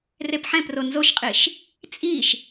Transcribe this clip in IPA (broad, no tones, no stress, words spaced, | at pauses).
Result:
repħɛ̃pro nzoʃqʼiʃ | t͡sʼiʃ